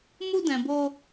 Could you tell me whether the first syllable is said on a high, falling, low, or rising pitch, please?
high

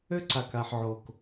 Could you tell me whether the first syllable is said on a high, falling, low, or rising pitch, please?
high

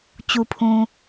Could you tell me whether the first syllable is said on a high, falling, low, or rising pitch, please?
low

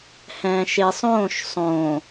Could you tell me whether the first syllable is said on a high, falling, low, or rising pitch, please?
low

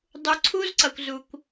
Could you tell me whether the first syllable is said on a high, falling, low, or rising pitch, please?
low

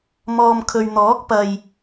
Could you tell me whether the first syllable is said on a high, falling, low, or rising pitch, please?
low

